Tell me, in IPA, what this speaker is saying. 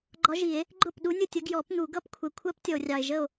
ɡ͡ǃ ɒ˧˥ ʒ i˨˩˦ e̯ | ɡ͡ǃ ʊ˥˩ p ɗ u˧˥ nʲ ʊ˥˩ tʲ ə˧˥ ɡ j ɔ˨˩˦ p n̪ u˨˩˦ ɡ ʌ˧˥ p kʷʰ ɛ˨ kʷʰ ɜ˧˥ p tʲ ɔ˨ o̯ rʲ ɑ˨ e̯ ʒ ə˥˩ o̯

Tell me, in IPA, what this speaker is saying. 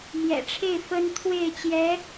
m j ɛ̰˨˩ ʈ͡ʂʰ e˥˩ ɪ̯ f ə˥ n t̪ʰ w e˥˩ ɪ̯ t͡ɕ j ɛ˧˥

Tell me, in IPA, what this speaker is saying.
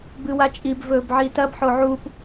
b ɨ w a t͡ʃʼ i b v ɵː b ʕ iː t ɐ b ħ o ʕ u p

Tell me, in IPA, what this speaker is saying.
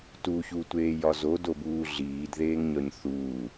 t u ç u tʷ eː j ɒ z o d o b uː ɮ iː d ð eː ŋ ɲ ɒ ɲ θ uː

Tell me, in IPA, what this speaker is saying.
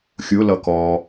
xʲ ʊ l ʌ k ɔ

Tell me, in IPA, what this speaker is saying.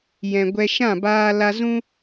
j ɛ̃˨ ɡʷ ɛ˧ ʃ ã˦˨ b aː˧ l a˧ z ũ˦

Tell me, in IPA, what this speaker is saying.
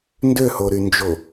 n d ø h o ɾ y n d͡ʒ o

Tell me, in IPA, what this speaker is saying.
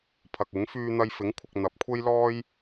pʰ ɐ˨ k̚ ɪ˨˥ ŋ f yː˧ n̪ ɐ˧ j f ɪ˨˥ ŋ kʷʰ ɪ˨ k̚ n̪ ɐ˨ p̚ kʷʰ e˥ j l ɔː˥ j

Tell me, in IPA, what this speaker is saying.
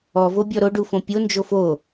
ɔ v o bʲ ɔ ɾ o ɖ u f õ pʲ o n d͡ʒ o f o

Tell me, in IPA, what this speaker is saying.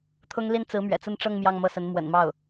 t̪ʰ ʊ˥ ŋ l i˥ n t͡s ɹ̩˧˥ m ɥ ɛ̰˨˩ t͡s ə˥˧ n ʈ͡ʂ ɤ˥˧ ŋ m j ɑ˥˧ ŋ m ɤ˥˩ s ə˧˥ n m w ə̰˨˩ n m ɑ˥˩ ʊ̯

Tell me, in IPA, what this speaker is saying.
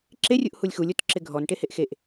ǁ e rʲ u ʔ h u lʲ x u lʲ o t ǁ ɪ ɡʱ ɔ n ʈ e h e ʔ x e ʔ

